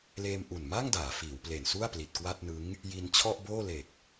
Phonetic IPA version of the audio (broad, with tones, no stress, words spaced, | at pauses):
leː˧mʔu˨˩nma˥˩ŋdaː˩˦ fiː˩˦wple˨˩nsu˥˩a̯ pli˨˩t̚kwa˥˩t̚nɯ˦˥ŋ | ji˧nt͡ɕʰɔ˥˩ʔboː˥˩le˨˩k̚